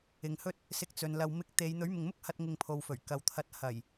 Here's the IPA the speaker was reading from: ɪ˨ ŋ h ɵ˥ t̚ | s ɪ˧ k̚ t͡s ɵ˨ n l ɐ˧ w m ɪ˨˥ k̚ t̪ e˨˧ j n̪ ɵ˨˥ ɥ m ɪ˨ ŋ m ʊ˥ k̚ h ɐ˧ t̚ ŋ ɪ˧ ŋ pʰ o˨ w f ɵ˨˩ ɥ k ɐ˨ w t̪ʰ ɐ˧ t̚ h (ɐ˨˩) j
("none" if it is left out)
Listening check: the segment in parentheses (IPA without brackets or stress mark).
ɐ˨˩